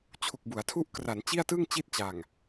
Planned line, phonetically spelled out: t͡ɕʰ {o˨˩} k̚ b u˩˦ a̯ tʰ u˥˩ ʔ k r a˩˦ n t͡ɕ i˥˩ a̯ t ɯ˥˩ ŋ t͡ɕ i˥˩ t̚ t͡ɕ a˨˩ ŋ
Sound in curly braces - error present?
yes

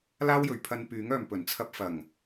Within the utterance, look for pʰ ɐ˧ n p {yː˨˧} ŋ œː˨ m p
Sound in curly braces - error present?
yes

